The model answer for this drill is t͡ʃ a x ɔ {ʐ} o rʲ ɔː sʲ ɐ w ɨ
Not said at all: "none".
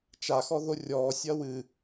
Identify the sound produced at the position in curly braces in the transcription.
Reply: ð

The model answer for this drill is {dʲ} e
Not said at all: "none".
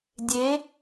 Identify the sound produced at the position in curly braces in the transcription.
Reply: dʲ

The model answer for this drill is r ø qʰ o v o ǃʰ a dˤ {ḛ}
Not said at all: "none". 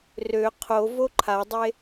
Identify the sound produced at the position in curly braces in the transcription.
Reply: e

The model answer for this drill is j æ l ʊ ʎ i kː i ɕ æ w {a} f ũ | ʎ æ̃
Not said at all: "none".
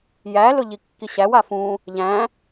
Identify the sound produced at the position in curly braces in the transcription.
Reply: a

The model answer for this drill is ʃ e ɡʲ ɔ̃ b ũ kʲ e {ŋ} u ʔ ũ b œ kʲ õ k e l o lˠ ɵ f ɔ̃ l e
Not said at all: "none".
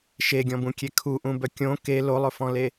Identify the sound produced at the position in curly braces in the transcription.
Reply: kʰ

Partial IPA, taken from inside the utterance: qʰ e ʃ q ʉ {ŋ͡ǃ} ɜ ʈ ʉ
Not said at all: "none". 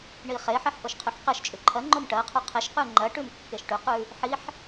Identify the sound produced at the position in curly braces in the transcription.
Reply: ŋ͡ǃ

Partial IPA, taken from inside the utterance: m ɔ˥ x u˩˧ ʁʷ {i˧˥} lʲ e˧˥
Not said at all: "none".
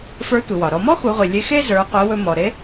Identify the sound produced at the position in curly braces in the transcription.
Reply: i˩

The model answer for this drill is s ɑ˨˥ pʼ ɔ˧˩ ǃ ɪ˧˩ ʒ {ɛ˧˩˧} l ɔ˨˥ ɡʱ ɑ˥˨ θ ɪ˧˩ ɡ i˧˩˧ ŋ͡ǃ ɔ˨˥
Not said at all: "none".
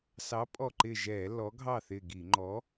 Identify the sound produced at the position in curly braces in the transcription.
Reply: ɛ˧˩˧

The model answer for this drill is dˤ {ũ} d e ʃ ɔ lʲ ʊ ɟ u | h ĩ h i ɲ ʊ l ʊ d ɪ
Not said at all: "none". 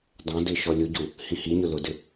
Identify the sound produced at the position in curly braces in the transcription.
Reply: õ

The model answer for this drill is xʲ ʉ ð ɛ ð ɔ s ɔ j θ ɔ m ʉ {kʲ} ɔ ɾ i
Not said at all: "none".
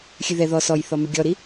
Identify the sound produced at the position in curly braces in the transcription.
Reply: ɡʲ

